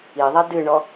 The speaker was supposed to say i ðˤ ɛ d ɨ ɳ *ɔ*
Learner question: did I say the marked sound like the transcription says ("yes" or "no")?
yes